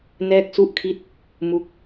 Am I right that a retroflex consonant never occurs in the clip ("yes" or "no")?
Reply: yes